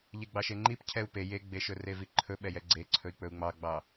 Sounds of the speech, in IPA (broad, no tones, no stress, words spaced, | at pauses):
ʎeɡ͡bɑʃeŋ͡ǃip cʰɛu̯pe jeɡ͡beʃɵ reviǃʰɵ ɓɛjɛɡ͡ǀe ǀʰɵi̯k͡pɵu̯ŋ͡mɑɡ͡bɑ